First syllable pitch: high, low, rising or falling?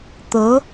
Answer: rising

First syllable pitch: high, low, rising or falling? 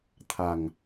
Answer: low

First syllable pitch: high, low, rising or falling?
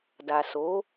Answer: low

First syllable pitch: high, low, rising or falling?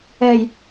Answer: low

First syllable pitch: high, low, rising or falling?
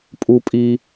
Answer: high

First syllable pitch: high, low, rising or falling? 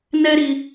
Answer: high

